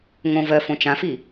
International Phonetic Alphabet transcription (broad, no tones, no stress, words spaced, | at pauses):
ŋõ vɜ fõt͡ʃãfi